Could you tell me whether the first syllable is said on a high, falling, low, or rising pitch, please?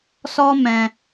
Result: high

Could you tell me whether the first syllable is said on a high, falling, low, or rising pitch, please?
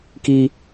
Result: high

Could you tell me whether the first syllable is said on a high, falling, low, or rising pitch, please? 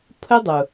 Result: high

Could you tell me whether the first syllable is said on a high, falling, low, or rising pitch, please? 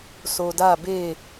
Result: low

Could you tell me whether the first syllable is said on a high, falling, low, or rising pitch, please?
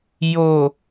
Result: low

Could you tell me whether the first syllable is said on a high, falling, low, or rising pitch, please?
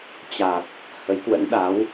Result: low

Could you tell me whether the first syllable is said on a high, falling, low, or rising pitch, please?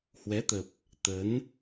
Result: rising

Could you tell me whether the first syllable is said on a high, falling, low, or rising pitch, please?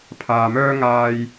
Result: low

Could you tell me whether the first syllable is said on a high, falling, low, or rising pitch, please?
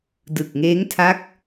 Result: low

